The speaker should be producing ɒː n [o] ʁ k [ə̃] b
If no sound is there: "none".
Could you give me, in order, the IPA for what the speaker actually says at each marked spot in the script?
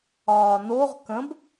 o, ə̃

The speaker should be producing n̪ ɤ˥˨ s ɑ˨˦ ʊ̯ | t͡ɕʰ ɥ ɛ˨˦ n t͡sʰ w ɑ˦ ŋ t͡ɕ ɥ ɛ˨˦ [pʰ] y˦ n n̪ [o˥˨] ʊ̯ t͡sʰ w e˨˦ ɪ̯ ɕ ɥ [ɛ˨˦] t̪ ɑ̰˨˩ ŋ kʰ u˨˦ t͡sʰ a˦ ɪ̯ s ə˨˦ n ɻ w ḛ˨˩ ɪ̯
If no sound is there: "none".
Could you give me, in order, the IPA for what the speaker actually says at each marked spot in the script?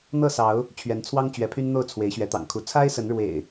pʰ, o˥˨, ɛ˨˦

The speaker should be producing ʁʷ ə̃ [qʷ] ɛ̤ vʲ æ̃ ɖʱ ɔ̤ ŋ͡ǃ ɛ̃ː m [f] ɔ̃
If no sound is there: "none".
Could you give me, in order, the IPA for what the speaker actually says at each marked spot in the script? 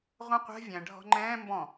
qʷ, b

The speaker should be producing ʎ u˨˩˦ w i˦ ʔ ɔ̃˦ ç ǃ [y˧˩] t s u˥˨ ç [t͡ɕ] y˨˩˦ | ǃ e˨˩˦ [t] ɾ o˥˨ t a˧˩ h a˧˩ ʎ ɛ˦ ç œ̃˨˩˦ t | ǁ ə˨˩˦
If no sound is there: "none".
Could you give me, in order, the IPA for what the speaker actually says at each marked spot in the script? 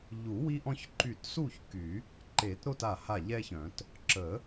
y˧˩, k, t

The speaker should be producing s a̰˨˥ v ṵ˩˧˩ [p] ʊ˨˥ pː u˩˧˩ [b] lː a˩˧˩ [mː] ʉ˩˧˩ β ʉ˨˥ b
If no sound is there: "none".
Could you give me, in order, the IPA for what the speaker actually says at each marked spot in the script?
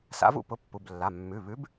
p, b, mː

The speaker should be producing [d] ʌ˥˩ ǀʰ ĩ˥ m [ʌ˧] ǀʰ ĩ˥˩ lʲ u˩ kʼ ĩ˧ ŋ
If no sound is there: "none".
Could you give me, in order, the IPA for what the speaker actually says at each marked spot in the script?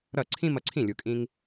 ɾ, ʌ˧

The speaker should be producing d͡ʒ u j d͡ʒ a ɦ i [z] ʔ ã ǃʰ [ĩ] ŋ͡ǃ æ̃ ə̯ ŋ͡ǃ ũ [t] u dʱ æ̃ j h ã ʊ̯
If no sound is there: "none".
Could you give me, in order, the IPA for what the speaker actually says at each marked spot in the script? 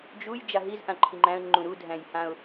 z, i, ɾ

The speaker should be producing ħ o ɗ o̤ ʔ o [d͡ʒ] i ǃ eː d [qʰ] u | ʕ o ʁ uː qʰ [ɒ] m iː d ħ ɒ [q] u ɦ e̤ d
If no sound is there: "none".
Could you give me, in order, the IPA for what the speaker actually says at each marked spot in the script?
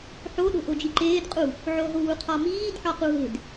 d͡ʒ, qʼ, ɒ, q

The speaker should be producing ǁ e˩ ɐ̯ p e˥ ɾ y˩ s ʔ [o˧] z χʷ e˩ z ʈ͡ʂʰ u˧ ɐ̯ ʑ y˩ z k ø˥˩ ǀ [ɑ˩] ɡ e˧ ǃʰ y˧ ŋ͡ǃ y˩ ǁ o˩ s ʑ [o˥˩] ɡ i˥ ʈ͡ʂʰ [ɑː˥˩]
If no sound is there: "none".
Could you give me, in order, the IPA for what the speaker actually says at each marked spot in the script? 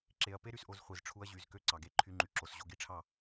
o˧, ɑ˩, o˧, ɑ˥˩

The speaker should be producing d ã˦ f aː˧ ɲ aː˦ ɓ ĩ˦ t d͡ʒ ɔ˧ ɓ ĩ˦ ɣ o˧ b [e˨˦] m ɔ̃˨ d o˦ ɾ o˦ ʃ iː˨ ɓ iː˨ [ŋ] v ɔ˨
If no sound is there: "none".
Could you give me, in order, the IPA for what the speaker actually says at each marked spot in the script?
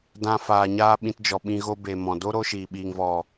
e˨, ŋ

